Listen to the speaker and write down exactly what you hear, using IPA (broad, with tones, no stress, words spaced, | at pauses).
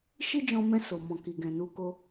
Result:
ʃi˦d͡ʒɔ̃˧mɛ̃˧ so˨ mɔ̃˨ki˨ɡɛ̃˨ nu˧ko˧